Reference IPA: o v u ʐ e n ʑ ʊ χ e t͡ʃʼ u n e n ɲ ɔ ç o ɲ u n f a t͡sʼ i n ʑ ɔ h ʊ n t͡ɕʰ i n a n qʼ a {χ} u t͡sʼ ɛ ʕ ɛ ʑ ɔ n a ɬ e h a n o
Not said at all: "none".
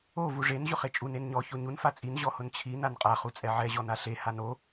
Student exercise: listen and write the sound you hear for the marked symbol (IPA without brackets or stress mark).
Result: χ